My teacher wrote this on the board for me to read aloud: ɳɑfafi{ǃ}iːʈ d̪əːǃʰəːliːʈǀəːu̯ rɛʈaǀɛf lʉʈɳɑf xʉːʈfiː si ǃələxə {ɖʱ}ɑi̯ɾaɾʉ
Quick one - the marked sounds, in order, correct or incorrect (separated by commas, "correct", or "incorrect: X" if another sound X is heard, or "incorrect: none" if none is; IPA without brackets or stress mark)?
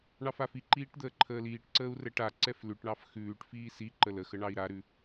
correct, incorrect: ɳ